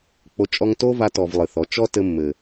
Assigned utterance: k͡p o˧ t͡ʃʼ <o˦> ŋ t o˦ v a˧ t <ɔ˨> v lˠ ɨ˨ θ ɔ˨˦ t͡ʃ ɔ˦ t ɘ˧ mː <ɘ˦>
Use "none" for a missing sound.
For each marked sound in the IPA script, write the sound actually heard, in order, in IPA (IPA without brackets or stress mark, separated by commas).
ɔ˦, ɔ˨, ɘ˨